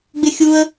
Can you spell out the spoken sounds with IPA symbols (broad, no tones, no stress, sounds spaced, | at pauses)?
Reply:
ɡ͡b ɪ xʲ u ə̯